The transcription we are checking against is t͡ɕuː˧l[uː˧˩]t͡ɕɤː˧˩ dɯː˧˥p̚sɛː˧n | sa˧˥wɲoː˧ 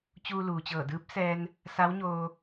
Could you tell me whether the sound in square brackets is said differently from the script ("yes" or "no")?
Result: yes